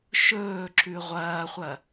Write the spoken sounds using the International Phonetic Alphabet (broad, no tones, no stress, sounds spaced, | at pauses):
ʃ ɵː ǁ ʉ ʁʷ ɐː χʷ ɐ